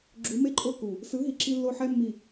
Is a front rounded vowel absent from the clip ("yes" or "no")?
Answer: yes